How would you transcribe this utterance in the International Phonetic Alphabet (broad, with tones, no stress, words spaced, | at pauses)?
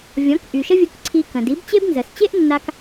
vʲɔ̃˩˥kʔy˩ʃə˥vʲu˧k ǀʰi˧kə̃˩ di˩˥bt͡ɕe˥bnzə˩s t͡ɕe˥ʔnːa˧k